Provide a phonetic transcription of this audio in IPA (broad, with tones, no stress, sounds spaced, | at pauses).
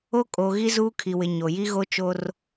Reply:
o˦ kʼ o˨ ɣ i˦ z uː˦ kʰ i˨ w ɪ˨ ɲ o˨ j i˦ ɣ o˦ t͡ʃ o˦ r